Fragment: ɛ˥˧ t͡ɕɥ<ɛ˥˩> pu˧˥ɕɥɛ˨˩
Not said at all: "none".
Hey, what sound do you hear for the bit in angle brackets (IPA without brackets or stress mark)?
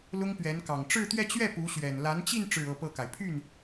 ɛ˥˩